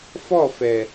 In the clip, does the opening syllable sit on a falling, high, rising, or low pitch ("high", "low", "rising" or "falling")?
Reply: falling